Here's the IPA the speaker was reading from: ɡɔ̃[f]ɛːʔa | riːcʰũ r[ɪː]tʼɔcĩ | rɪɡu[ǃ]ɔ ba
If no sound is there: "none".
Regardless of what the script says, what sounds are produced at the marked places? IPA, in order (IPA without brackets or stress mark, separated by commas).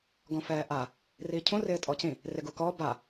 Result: f, ɪː, k